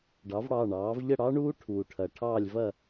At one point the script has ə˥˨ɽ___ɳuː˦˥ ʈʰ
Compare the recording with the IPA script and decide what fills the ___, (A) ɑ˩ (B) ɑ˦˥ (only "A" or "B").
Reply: B